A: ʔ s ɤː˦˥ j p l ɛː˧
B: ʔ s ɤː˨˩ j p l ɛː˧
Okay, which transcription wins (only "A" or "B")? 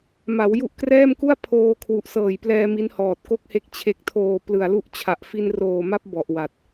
B